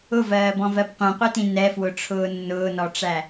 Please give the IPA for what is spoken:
ʊvɜːbɔ̃vɜb qʷĩqʷitĩ nɛfwʊʈ͡ʂʰʊː nːʊːnɔʈ͡ʂæ

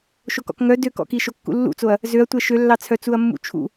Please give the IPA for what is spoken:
ʃokɔ̰kŋœ døkɔ̰ki ʃokːṵlːṵt͡soɐ̯ | zøɐ̯tʷɛ ʃølːɑt͡sʰœ t͡suɐ̯mːṵt͡ʃʰṵ

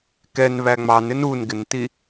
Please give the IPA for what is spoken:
kɛnβæ ŋ͡mɑnɪn unɡɪnti

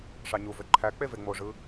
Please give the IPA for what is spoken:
ʂɑɲuvø ǃʰæ k͡peveŋ͡moʐɯ

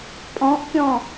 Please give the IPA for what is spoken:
pʼɔ̃ʔkʲɔ̃

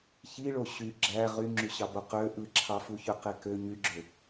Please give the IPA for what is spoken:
çiɭo ɕy ɡ͡ǁæ ʁyŋ͡ǁyɕɑbo qø ʔɯǁʰɑfu çøqekø ɲyɡ͡ǁø

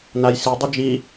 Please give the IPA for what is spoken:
najsidˤɵ d͡ʒi

